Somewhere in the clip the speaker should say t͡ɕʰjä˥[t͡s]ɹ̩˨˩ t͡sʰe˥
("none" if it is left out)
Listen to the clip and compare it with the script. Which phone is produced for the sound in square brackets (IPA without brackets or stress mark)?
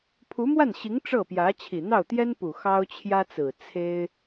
t͡s